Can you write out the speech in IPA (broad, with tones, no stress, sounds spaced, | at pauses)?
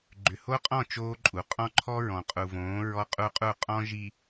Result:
ɡ͡ǃ ʏ˨ h o˦ qʼ ɔ̃˦˨ t͡ʃ oː˦ ǃʼ u˨ qʼ ɔ̃˦ ǃʰ ɔ˦ ɹ ɔ̃˨ qʼ u˨ v õː˨˦ ɹ ɔ˦ qʼ u˦ qʼ u˦˨ qʼ ɔ̃˦ ʒ i˨